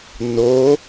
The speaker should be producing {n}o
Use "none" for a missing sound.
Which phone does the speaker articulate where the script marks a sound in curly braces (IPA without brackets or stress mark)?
n